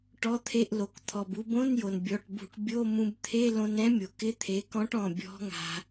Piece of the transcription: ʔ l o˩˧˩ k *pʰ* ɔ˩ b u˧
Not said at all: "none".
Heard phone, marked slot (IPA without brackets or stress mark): t̪ʰ